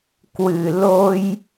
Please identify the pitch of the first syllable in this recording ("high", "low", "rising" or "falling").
low